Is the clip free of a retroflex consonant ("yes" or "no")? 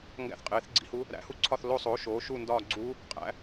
yes